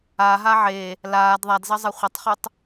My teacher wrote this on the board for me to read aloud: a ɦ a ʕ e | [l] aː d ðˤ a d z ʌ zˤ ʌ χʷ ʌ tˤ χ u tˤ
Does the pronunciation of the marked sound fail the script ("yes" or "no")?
no